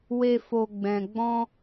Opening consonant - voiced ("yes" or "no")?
yes